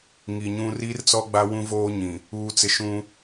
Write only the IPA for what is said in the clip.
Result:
ŋ i˨ ɲ ũ˦ r i˦ r t͡s ɔ˦ ɡ͡b a˦ w ũ˦ v oː˦ ɲ ĩ˨ | uː˨ t͡s ɪ˨ ʃ ũ˦

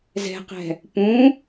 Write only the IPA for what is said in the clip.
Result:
z ɛ̤ q ɛ̤ | p ũ

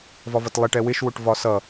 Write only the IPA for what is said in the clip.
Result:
v ɒ v ʌ t lˠ ɛ ʈ ɛ w ɪ ʃ w ʊ ʈ v ɒ s ʌ

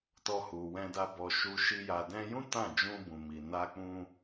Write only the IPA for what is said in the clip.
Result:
t ɔ˧ h u˨ w ɛ̃˧ d a˧ b ɔ˨ ʃ u˧ ʃ i˧ j a˨ d ɛ̃˧ j ũ˦ t ã˦˨ d͡ʒ ũ˧ b ũ˨ m i˨ n a˧ k͡p ũ˧

